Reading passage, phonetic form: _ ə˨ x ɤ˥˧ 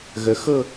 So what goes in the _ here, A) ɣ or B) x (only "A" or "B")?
A